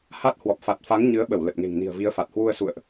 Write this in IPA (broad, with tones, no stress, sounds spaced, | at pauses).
h a˦˥ t̚ h w ɔ˨˩ p̚ f a˨˩ t̚ f a˨˦ ŋ ɲ ɨ˨˦ ə̯ ɓ ə˧˩ w l ə˨˩ t̚ ŋ e̤˨˩ ŋ n i̤˨˩ ə̯ v i˨˦ ə̯ f a˨˩ t̚ h w u˧ ə̯ s ṵ˧˨ ə̯ ʔ